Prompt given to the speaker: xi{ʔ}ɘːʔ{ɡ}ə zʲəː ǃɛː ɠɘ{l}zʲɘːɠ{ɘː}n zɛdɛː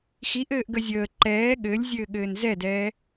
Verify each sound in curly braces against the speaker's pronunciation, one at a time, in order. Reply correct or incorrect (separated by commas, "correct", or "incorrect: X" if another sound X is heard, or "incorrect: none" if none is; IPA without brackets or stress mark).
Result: correct, correct, incorrect: lʲ, correct